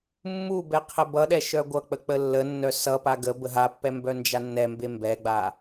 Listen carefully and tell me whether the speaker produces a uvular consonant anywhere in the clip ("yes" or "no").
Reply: yes